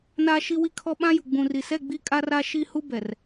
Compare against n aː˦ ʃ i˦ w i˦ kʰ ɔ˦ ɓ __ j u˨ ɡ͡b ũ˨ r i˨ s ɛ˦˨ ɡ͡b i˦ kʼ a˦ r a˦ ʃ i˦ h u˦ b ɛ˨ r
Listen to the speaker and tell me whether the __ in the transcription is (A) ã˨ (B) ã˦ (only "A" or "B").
B